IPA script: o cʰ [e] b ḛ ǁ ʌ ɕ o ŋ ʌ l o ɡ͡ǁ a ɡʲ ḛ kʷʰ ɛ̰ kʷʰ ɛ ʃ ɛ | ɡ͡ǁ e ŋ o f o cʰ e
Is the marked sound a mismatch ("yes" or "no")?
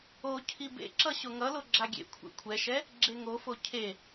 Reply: yes